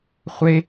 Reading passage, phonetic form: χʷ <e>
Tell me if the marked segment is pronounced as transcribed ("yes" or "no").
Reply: yes